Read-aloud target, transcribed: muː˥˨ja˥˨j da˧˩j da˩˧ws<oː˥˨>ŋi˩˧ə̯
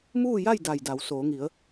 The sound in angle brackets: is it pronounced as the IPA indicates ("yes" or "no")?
no